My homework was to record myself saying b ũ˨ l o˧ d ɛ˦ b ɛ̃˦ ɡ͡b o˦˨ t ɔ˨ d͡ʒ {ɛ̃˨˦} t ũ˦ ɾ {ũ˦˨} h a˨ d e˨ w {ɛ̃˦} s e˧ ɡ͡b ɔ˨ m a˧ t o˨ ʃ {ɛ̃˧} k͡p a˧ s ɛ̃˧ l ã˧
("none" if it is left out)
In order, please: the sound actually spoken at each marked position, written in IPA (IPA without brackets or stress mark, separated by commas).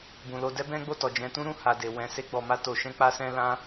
ɛ̃˨˦, ũ˦˨, ɛ̃˨˦, ɛ̃˧